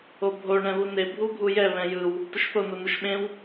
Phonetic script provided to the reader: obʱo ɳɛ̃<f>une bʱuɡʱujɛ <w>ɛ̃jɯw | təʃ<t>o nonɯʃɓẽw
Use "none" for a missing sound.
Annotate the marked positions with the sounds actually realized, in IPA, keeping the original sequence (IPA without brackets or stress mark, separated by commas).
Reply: β, β, θ